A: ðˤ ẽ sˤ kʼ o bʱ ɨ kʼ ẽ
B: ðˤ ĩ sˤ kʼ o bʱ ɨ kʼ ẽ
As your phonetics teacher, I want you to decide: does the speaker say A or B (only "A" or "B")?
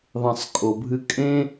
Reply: A